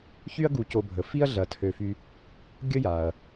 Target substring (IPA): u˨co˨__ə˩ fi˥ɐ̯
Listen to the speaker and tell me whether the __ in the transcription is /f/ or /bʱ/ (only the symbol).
bʱ